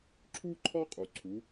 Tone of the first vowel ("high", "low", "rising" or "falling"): high